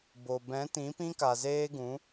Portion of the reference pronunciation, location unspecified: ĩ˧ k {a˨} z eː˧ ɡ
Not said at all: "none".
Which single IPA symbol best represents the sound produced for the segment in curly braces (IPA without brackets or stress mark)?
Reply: a˨